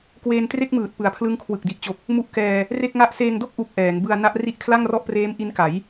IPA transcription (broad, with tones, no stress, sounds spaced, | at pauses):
k w eː˧ n t r e˥˩ k̚ m ɯː˨˩ t̚ p ɯ˨˩ a̯ pʰ l ɯ˦˥ ŋ kʰ w ɯ˨˩ k̚ d i˨˩ ʔ t͡ɕ o˨˩ k̚ | m u˦˥ ʔ k ɛː˧ | r e˥˩ k̚ ŋ a˥˩ ʔ s eː˧ ŋ d o˥˩ k̚ ʔ u˦˥ k̚ ʔ ɛː˩˦ ŋ b ɯ˧ a̯ n a˦˥ ʔ r i˦˥ ʔ kʰ l a˥˩ ŋ r ɔ˥˩ ʔ p r eː˦˥ m ʔ i˦˥ n k a˩˦ j